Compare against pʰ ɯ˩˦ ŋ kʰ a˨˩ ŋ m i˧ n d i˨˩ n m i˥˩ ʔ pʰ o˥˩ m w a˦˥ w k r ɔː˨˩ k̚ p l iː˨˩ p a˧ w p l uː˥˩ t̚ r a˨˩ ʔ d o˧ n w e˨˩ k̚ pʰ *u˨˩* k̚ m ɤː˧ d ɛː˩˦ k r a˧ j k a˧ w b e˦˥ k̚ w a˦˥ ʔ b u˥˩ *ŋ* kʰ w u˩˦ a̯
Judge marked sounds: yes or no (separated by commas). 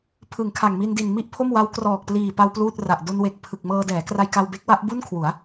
no, no